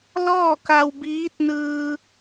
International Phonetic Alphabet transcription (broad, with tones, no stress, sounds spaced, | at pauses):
l ɔː˥˨ k a˧ w b iː˧˥ t̚ n ɯː˧